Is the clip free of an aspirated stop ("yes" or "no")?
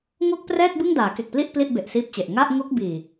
yes